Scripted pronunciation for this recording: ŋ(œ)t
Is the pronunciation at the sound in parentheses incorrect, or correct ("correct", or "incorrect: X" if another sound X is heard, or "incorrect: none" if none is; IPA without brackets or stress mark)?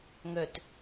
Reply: correct